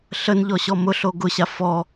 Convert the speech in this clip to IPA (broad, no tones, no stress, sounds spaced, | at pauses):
ɬ ə n ʎ ɔ ɕ ɔ m ʊ ɬ o ɡ ʊ ɕ a f ɔ